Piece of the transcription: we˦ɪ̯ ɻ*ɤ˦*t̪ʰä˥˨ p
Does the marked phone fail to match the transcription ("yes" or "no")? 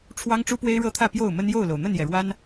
no